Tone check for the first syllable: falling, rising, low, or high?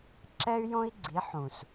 high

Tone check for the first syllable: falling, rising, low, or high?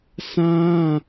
high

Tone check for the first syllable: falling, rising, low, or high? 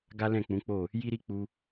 high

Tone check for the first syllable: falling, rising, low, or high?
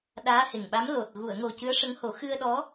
rising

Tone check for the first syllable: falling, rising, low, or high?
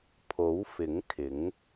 rising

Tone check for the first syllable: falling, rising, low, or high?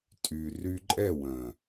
low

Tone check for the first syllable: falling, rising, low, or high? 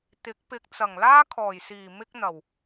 rising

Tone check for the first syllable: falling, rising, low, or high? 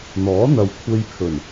rising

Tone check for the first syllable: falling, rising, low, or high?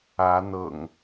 rising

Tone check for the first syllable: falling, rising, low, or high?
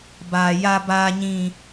high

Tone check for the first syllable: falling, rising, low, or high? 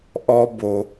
high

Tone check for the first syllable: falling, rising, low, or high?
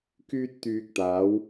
high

